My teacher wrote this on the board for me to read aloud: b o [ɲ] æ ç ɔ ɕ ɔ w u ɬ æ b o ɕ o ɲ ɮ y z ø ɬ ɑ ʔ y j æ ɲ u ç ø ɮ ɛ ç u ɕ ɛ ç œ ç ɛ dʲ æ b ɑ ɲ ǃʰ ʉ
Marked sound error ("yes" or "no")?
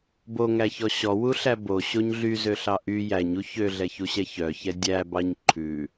yes